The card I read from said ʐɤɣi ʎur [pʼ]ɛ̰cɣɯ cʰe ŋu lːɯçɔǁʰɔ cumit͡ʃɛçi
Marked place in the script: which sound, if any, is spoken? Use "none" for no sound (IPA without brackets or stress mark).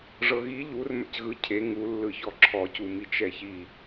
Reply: m